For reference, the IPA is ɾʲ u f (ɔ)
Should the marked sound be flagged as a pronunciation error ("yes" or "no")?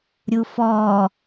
no